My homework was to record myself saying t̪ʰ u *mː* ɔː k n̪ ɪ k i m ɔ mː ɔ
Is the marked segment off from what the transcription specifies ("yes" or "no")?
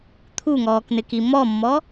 yes